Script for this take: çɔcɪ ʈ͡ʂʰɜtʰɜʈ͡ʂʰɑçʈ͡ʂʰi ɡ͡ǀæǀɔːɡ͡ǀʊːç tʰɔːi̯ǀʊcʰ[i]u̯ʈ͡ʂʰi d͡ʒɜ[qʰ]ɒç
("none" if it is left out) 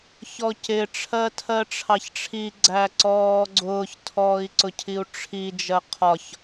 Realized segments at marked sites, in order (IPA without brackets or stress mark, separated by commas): i, qʰ